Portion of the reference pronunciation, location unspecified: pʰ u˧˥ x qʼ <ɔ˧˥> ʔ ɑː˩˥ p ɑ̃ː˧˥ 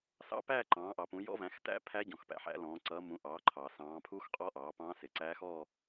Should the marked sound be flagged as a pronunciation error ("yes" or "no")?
no